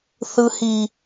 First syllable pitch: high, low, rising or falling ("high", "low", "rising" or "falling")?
high